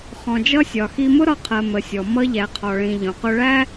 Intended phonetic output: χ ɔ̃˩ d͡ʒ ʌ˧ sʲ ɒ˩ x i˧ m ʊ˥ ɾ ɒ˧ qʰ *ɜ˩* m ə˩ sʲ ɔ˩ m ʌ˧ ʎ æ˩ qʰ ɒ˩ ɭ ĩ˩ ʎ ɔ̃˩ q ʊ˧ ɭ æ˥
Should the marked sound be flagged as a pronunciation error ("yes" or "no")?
no